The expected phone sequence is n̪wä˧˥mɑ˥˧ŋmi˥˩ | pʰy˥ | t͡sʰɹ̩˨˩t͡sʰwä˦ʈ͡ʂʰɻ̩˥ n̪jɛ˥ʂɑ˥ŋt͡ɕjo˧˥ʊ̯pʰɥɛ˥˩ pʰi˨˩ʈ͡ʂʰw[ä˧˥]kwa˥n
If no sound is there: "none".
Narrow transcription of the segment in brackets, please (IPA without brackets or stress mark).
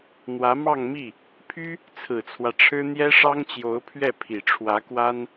ä˧˥